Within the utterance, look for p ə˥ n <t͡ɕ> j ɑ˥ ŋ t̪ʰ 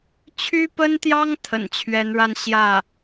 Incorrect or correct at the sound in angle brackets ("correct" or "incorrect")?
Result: incorrect